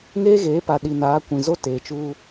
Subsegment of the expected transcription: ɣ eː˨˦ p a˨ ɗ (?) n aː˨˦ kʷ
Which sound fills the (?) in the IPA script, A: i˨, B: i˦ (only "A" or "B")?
A